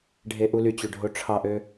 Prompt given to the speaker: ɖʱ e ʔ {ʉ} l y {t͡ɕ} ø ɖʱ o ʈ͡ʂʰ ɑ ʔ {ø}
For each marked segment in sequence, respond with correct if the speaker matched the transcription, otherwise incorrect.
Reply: incorrect, correct, correct

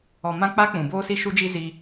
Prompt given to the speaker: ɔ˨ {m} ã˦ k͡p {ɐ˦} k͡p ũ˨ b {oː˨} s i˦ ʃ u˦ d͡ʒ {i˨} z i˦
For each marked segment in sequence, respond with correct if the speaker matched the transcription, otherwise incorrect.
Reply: correct, incorrect, incorrect, incorrect

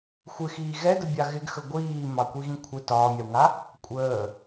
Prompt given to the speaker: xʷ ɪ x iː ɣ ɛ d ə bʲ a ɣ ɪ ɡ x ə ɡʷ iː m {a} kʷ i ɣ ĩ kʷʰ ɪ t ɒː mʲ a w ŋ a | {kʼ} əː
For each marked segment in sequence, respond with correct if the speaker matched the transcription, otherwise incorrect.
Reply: incorrect, incorrect

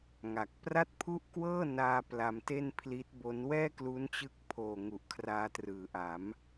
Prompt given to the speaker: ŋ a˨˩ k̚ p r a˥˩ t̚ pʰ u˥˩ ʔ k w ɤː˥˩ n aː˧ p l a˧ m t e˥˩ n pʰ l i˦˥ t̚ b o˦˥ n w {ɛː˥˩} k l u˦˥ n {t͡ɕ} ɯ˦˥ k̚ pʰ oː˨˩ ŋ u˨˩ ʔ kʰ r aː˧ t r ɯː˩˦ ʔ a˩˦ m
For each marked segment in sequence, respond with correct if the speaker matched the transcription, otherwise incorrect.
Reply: correct, correct

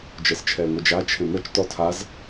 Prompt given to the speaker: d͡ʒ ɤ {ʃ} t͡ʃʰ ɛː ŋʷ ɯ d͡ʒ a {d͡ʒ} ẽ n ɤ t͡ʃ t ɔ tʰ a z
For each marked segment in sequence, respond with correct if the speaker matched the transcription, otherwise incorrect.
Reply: incorrect, incorrect

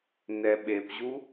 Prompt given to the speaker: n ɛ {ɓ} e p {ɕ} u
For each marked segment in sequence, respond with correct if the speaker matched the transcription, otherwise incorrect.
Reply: correct, incorrect

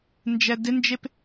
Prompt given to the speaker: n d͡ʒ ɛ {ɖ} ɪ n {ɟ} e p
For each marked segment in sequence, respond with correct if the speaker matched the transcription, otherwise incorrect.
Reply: incorrect, incorrect

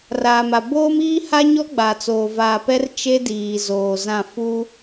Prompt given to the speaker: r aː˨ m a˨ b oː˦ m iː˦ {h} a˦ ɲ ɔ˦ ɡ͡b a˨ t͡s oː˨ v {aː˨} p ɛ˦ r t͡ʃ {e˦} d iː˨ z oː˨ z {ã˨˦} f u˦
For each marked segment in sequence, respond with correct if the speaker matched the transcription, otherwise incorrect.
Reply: correct, correct, correct, incorrect

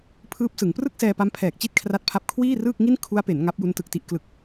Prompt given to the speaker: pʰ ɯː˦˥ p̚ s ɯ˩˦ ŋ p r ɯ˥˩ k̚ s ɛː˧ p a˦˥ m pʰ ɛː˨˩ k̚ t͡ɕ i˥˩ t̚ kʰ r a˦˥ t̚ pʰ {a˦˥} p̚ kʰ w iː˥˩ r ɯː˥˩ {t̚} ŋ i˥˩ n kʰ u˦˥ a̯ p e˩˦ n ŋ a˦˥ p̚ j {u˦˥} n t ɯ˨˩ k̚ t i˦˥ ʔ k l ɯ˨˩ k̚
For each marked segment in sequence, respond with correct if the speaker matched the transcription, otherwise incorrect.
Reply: correct, incorrect, correct

